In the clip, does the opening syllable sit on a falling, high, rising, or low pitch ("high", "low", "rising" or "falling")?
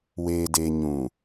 low